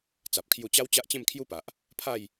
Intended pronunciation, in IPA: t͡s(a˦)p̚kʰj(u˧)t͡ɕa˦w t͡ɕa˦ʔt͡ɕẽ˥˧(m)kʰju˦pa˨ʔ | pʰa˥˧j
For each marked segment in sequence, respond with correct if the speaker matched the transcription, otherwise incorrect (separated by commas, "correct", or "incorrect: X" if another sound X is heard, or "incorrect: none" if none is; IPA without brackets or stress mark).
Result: incorrect: a˨, correct, correct